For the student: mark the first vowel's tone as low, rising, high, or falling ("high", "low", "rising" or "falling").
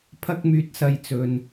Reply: high